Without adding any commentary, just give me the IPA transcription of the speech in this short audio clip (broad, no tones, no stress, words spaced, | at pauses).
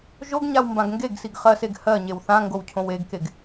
ʒoɡɲaw mbãɡŋɡeɡsiɡ χɜseɡ hɜ ɲewθãŋɡow cʰõweɡkeɡ